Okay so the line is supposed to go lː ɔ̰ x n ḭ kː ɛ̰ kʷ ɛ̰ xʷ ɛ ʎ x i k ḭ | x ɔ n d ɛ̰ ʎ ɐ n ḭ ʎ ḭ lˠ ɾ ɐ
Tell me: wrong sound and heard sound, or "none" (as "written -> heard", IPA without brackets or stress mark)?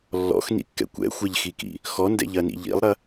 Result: none